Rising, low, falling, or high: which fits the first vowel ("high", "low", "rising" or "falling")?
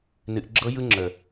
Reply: low